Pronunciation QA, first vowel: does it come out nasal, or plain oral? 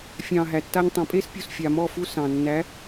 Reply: nasal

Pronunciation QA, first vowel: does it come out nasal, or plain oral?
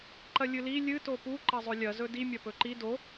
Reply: oral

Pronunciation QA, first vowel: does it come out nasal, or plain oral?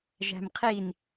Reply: oral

